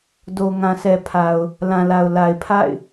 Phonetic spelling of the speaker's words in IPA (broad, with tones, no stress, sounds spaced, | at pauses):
d o˨ ŋ ã˨ s ɛ˨ pʰ a˨ ʊ̯ | l ã˨ l a˨ ʊ̯ l a˨ ɪ̯ pʰ a̰˦˨ ɪ̯